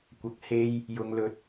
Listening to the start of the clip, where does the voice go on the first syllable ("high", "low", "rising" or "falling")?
low